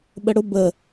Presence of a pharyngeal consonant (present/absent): absent